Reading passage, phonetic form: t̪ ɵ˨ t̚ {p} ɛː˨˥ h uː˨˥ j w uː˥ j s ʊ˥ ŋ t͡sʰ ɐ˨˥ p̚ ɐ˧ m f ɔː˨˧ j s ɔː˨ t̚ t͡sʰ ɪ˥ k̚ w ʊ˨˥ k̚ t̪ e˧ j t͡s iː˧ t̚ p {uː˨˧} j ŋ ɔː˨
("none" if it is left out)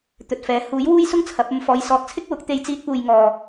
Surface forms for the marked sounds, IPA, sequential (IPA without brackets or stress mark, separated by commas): f, uː˨